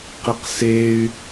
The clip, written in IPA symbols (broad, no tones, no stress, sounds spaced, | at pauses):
q i q s e y̯